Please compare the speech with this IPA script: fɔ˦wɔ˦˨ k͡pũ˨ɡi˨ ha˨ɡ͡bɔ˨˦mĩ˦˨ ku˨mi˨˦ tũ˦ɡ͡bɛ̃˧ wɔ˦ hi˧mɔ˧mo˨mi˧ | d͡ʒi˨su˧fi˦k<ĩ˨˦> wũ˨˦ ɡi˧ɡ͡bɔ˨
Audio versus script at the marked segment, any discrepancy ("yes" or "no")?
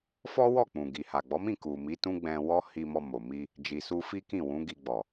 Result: yes